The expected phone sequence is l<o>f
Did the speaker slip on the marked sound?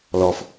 yes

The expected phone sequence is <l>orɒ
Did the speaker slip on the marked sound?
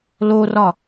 no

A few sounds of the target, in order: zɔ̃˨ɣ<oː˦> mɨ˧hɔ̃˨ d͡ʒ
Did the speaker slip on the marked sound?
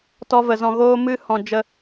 no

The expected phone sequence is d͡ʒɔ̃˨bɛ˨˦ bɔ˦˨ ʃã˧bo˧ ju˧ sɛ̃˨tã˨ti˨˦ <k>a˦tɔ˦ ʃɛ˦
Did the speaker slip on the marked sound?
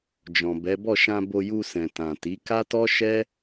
no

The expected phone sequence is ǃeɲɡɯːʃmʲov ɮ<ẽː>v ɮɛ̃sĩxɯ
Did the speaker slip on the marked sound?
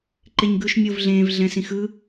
no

